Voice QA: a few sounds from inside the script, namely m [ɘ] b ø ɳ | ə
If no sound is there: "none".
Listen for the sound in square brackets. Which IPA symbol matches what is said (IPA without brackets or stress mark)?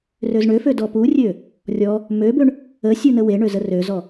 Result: ø